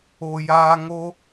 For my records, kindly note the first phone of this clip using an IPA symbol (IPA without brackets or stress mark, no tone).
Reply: o